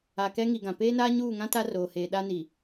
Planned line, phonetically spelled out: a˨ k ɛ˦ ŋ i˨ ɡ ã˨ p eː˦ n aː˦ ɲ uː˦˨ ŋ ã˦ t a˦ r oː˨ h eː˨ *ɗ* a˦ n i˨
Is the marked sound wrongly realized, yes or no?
no